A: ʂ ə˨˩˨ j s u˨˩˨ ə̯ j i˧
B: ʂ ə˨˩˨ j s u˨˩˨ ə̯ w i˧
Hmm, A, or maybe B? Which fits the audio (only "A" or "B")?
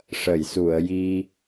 A